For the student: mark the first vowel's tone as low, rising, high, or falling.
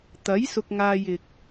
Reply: rising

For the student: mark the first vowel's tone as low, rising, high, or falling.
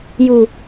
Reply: low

